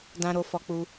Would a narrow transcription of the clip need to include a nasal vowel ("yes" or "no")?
yes